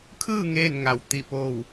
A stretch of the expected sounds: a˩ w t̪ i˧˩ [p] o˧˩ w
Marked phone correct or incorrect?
correct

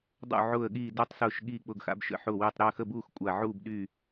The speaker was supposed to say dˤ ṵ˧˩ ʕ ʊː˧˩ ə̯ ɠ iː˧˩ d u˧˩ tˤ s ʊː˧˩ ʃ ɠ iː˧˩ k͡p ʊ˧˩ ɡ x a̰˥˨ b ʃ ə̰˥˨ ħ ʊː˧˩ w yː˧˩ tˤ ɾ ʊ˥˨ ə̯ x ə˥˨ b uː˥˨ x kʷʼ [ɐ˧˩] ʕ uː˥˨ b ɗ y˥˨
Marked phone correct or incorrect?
incorrect: a˧˩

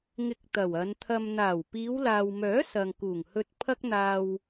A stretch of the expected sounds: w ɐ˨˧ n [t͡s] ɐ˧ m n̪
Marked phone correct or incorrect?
incorrect: t̪ʰ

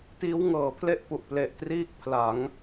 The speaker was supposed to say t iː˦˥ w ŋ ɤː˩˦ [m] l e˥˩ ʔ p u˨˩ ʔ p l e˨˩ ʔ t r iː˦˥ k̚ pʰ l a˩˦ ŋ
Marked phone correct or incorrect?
incorrect: pʰ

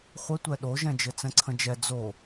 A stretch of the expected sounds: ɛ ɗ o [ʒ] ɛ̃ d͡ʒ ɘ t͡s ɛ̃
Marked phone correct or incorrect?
correct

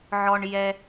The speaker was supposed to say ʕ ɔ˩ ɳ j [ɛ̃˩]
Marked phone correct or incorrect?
incorrect: ɛ˩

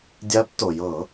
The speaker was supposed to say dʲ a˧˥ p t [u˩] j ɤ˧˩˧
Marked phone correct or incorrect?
incorrect: o˩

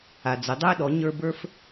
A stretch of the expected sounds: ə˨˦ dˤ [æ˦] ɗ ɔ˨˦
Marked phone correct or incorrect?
correct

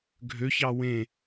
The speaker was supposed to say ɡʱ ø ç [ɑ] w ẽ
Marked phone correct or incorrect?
correct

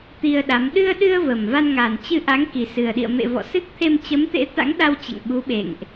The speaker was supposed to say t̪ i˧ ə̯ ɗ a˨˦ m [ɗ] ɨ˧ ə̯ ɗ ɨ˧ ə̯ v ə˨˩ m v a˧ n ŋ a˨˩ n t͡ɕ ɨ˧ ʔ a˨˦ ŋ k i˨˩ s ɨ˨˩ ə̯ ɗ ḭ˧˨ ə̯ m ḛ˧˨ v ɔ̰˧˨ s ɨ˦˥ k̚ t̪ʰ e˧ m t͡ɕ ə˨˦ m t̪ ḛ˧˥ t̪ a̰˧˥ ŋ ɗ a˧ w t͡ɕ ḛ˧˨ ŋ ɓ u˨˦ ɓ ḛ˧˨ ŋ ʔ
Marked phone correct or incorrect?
correct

